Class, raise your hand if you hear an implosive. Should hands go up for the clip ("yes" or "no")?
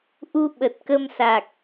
yes